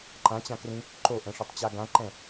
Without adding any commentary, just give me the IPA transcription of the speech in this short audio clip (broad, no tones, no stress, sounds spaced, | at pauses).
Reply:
ǃ ã t͡ɕ ã k r ĩ | ǃ o ʔ ɛ̃ ʂ ø tˤ t͡ɕ a ɡ ã ǃ ɛ̃